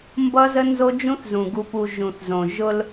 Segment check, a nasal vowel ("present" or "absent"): present